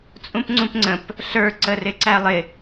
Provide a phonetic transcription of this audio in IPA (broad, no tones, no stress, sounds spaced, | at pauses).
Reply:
t͡sʼ ũ p ŋ͡ǀ ũ p ŋ͡ǀ ə̃ p | ɬ ə˞ ǀ ə r ɪ ǀ æ lˠ ɪ